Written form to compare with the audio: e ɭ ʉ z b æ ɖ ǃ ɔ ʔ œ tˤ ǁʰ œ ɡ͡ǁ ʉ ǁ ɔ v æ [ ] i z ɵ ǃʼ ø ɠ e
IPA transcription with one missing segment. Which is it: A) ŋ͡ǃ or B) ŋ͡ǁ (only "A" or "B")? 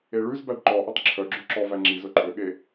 B